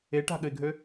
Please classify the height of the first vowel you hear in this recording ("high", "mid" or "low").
mid